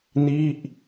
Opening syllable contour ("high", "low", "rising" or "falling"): falling